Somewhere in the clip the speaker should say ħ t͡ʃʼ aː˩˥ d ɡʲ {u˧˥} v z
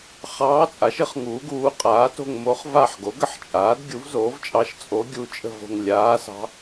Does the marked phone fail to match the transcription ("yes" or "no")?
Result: yes